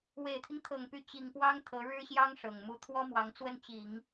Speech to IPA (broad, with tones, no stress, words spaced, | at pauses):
we˨˩ɪ̯t̪ʰi˦ŋt̪ʰɤ˨˩ŋ py˧˥t͡ɕi˨˩ŋ pwɑ˥ŋt̪ʰɤ˧˥ ɻɻ̩˥ɕjɑ˥ŋ ʂɤ˨˩ŋ mu˧˥t̪ʰwɔ˥mwɑ˧˥ŋt͡swə˥˩n t͡ɕi˨˩˦ŋ